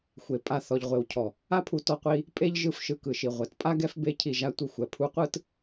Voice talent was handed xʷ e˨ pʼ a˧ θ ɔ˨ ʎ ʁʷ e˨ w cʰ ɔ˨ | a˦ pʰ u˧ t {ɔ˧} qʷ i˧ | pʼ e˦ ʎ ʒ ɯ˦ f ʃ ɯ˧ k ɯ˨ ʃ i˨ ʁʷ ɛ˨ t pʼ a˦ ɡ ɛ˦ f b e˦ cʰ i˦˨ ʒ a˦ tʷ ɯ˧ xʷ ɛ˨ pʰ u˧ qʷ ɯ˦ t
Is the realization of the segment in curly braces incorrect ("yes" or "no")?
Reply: no